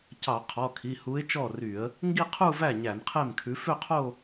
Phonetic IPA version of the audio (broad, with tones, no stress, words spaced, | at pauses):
cɑ˧˩˧qʰɔ˩˧˩kʰi˩˧˩hu˨˥ɪ̯ t͡ʃɔ˥˩ry˧˩˧ə̯ | ŋɡi˥˧qʰu˥˧væ˥˩ ɲæ˧˩˧nqʰe˥˩mkʰʉ˨˥ fø˥˧qʰo˥˧